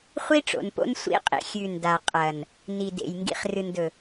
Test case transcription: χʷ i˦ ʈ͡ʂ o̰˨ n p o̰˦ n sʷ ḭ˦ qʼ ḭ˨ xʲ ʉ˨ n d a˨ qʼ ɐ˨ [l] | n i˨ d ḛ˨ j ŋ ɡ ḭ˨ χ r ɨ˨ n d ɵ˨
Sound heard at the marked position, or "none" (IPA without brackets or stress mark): n